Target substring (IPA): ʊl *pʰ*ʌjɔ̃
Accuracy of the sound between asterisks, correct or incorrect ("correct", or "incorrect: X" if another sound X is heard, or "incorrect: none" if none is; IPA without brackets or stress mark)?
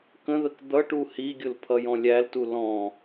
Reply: correct